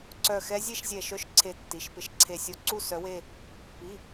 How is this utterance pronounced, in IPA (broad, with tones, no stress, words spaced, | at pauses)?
ǀœ˧˩ xɛ˧˥zʲe˥˧ʃzʲɛ˧˩ʃœ˧˥ʃ ǀʰe˧˩tːi˩˧˩ʃpɪ˧˩ʃ ǀʰe˧˩sʲo˧˥ǀu˥˧ sœ˧˥we˥˧ | pi˩˧˩